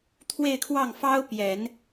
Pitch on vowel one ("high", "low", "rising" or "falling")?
falling